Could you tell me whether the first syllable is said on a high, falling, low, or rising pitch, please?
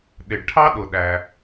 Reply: low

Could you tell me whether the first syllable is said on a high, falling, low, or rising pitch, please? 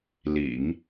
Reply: low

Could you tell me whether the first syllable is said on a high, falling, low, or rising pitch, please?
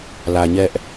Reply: low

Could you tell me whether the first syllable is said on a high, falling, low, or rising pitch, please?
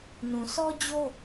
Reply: low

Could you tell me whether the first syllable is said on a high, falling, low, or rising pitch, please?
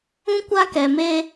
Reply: high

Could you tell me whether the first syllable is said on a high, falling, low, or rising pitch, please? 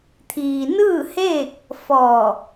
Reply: low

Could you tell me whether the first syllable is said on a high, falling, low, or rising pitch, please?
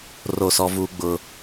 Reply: falling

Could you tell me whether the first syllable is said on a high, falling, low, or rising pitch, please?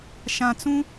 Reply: low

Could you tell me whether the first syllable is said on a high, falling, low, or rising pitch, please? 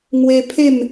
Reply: high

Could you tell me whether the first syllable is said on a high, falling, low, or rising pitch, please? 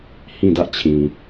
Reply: falling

